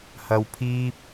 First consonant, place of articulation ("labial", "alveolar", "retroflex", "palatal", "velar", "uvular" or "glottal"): glottal